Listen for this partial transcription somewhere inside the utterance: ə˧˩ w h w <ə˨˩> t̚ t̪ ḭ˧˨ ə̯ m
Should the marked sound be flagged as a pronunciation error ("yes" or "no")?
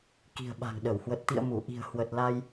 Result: no